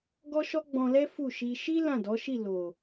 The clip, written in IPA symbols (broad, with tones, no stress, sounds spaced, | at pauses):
ɡ ɔ˦ ʃ ɔ˦ ɡ͡b ɔ̃˧ l ɛ˦ f u˦˨ ʃ i˧ ʃ i˦ l ã˦˨ d ɔ˨˦ ʃ i˦˨ l o˨